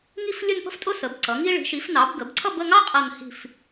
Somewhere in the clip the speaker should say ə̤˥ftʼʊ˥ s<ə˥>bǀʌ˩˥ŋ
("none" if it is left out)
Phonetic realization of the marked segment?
ə˩˥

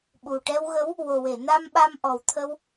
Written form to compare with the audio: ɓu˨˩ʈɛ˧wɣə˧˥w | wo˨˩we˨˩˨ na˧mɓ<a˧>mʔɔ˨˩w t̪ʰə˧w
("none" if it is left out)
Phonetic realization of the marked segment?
a˧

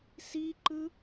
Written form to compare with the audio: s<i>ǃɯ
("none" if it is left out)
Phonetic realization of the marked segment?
i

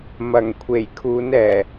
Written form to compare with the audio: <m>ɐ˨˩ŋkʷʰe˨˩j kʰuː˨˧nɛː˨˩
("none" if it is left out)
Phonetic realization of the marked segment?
m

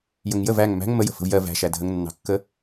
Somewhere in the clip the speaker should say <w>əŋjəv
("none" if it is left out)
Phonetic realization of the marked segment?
j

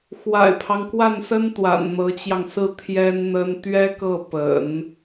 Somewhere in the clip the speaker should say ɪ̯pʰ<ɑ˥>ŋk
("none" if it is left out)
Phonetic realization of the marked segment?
ɑ˦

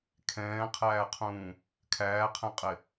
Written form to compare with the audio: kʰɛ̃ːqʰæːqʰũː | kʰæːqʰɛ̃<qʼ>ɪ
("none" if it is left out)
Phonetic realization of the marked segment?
qʼ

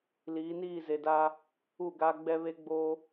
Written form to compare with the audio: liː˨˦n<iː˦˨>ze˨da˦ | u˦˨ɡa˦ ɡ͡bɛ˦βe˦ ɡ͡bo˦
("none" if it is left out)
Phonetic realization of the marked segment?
iː˦˨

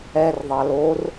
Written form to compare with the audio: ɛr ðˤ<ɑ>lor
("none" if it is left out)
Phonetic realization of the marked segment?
ɑ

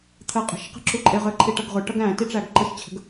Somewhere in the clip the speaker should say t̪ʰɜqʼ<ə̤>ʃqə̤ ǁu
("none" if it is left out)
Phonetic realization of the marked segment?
ə̤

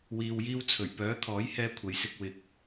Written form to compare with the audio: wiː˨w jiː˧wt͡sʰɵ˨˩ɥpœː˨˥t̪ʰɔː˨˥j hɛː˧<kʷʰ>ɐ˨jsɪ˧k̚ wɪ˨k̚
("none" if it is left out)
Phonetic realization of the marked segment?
kʷʰ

